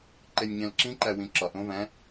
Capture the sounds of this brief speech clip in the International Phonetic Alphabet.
ǃ e nʲ ɲ æ̃ l ǁ ĩ ǃ æ w ĩ ǁ ɒ ʔ õ v æ̃

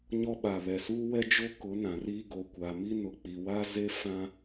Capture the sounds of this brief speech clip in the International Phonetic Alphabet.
ɲ ɔ˦ ɓ a˨ β ɛ˨ s uː˦ w ɛ˦ d͡ʒ o˦ k ʊ˨˦ n ã˨ r iː˦ ɡ o˨ kʷ a˨ m i˦ n ʊ˨ k͡p i˨ w a˦ z e˦ f ã˦

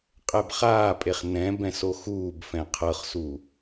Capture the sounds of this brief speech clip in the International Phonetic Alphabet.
qʼ ɛ b χ aː pʼ e χ n ɛ̃ b ɛ̃ s o x uː b f ɛ̃ qʰ ɤ χ s uː

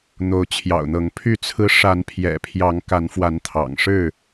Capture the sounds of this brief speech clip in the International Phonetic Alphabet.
n̪ o˨˦ ʊ̯ t͡ɕʰ j ɑ̰˨˩ ʊ̯ n̪ ɤ˨˦ ŋ pʰ y˥˨ t͡sʰ ɹ̩˦ ʂ a˨˦ n pʰ j ɛ̰˨˩ pʰ j ɑ˨˦ ŋ k a˨˦ n f w a˨˦ n t̪ʰ ɑ̰˨˩ ŋ ʂ ɻ̩˥˨

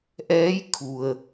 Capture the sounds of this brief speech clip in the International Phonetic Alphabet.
ʔ ɛː˧˥ j kʰ u˩ ə̯

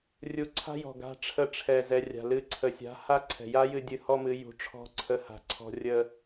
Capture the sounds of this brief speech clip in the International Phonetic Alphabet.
rʲ u˧ ǀʰ a̤˦ j ɔ̤˨ ɡ a̤˧ ʈ͡ʂʰ ə˦˨ ʈ͡ʂʰ ɛ˨ z ɛ˨ rʲ a̤˨ l ɨ˧ ǀʰ ə˨ sʲ a̤˨˦ h a˦ ǀʰ ɛ̤˨ j a˦ j ɨ˧ dʲ ɨ˧ h ɔ˦ m ɨ˨˦ j ṳ˧ ʈ͡ʂʰ ɔ̤˦ ǀʰ ə˧ h a̤˨ ǀʰ ɔ̤˧ rʲ ə˧

